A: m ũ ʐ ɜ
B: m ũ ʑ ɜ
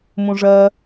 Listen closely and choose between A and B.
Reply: A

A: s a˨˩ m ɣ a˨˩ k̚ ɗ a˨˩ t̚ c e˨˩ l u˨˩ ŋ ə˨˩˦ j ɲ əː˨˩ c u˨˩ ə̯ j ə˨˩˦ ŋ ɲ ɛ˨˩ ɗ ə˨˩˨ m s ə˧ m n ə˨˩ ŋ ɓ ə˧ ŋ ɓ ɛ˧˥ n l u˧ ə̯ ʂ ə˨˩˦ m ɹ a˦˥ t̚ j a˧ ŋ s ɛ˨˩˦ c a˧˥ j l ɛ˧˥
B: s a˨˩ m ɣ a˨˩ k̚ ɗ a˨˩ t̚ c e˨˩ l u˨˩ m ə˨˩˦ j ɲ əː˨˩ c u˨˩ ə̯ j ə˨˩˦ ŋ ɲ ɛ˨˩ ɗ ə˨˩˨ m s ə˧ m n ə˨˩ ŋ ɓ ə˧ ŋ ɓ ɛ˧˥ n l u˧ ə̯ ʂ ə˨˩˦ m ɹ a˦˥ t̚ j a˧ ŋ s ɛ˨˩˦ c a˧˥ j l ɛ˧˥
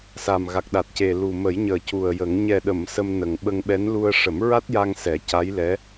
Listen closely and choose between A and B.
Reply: B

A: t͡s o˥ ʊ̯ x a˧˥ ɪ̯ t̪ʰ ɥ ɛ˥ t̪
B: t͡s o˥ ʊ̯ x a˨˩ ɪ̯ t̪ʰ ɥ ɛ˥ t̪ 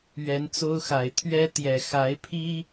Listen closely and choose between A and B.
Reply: B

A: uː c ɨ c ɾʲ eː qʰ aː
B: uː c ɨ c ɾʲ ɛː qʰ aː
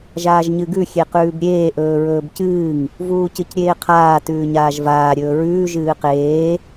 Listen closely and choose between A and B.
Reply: A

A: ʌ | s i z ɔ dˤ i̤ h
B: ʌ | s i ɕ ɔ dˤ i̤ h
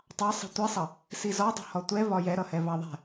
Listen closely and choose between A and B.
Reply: A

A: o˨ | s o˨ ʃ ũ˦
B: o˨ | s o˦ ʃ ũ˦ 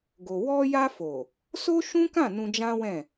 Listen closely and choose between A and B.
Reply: B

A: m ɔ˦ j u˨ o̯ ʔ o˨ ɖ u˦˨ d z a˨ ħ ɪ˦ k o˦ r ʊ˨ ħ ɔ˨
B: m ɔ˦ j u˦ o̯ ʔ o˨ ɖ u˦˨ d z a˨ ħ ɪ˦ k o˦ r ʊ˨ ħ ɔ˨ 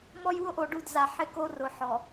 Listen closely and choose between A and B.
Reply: B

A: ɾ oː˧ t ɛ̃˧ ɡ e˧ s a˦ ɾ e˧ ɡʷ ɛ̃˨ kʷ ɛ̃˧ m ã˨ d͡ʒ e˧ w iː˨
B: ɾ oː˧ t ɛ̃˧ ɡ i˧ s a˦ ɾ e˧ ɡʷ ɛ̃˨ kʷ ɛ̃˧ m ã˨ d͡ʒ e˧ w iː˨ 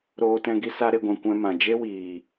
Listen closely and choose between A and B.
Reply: B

